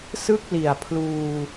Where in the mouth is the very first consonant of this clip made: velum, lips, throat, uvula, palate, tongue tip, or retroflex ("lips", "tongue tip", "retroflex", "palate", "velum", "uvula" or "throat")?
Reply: tongue tip